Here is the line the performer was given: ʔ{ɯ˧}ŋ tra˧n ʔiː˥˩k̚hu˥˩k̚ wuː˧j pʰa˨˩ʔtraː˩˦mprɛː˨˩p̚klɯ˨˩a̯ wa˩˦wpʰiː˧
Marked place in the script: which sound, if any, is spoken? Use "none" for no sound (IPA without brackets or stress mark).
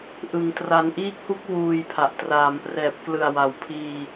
ɯ˧